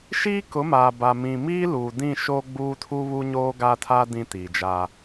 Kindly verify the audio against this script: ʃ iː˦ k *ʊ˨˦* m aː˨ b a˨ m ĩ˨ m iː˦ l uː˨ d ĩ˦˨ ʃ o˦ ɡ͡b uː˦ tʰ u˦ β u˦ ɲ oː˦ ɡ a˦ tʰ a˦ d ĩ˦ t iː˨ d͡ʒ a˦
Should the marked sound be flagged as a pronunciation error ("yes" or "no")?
no